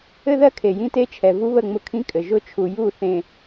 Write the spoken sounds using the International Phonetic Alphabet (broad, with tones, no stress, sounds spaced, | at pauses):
ɘ˦ ð ɜ˦ kʰ e˨ j ĩ˦ t e˦ t͡ʃʰ ɛ˨ v u˦ β ə˦˨ ŋ͡m ʊ˦ kʰ ĩ˦ kʼ ɘ˨ ʒ ʊ˦ t͡ʃʰ u˨ j u˦˨ θ ẽ˨